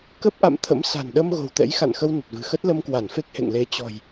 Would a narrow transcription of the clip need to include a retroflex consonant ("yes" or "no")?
no